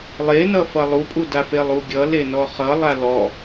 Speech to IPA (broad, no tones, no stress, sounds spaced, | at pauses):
lˠ e n ʌ f ʌ lˠ u pʼ u d a f e lˠ u ɡʲ ʌ l e n ɔ χ ʌ lˠ a l ɔ